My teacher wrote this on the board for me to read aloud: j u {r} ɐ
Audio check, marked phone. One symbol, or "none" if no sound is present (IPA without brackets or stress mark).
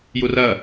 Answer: r